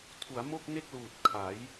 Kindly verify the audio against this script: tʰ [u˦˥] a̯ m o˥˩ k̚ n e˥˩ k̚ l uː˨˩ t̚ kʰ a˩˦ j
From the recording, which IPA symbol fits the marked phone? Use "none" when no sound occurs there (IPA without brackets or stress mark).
u˩˦